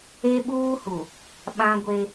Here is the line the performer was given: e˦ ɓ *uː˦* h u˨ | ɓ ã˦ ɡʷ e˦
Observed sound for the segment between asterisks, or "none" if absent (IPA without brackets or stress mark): uː˦